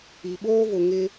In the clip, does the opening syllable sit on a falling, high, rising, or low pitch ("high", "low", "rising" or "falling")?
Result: low